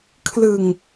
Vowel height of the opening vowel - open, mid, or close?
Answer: close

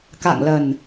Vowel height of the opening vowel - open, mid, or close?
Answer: open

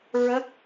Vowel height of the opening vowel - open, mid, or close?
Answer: mid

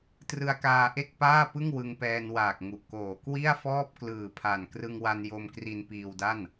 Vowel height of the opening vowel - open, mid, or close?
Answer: close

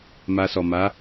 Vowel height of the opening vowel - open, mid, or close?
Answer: open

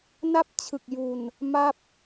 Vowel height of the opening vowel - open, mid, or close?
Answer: open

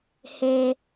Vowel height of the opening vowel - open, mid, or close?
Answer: mid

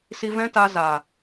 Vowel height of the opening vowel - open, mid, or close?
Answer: close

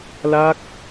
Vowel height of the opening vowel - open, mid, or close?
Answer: open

